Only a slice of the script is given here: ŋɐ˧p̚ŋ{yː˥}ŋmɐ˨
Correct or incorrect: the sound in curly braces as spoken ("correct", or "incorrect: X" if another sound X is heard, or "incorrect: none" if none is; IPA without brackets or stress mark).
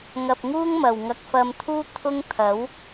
incorrect: uː˥